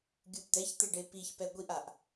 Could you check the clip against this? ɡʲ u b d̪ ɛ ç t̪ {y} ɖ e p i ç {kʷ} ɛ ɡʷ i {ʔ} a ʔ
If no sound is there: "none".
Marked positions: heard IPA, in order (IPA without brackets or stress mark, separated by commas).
e, p, ʔ